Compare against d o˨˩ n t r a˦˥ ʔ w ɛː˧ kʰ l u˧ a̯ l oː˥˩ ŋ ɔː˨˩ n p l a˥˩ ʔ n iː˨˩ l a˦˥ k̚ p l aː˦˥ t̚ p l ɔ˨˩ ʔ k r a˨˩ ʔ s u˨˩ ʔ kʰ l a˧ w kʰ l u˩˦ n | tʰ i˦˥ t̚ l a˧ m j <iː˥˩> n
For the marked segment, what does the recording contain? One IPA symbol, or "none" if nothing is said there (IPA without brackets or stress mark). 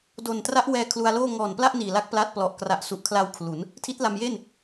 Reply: eː˥˩